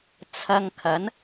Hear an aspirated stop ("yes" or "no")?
yes